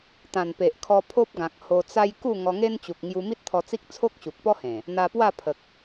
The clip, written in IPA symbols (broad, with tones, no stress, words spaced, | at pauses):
t̪ã˨˩npe˨ʔkʰɔ˧ pʰo˦p̚ɡã˨k̚ ho˧t͡sa˦j ku˥˧ ŋɔ˧ŋe˦nt͡ɕu˨k̚ ŋju˧mi˦t̚t̪ʰɔ˧t͡si˦k̚ t͡sʰo˦k̚ɕu˨k̚pɔ˦hẽ˨˩ | n̪a˧pwa˥˧pʰə˨k̚